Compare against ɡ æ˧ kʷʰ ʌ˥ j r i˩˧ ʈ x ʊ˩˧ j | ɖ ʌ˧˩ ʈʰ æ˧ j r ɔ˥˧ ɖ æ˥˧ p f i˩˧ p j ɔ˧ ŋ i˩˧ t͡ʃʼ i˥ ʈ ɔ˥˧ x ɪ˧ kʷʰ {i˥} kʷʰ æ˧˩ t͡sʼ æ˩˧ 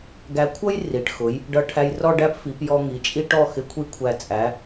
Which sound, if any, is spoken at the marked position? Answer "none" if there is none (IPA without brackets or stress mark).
i˥˧